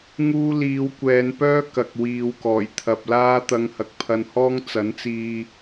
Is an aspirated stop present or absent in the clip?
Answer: present